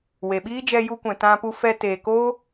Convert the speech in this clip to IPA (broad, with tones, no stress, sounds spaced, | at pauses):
w e˨ ɓ iː˦ d͡ʒ ɛ˧ j u˧ kʷ ɛ̃˨ t ã˧ p u˧ f ɛ˧ t eː˨ k o˦